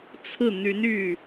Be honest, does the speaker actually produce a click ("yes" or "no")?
no